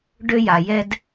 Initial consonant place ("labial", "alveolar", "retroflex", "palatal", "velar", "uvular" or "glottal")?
retroflex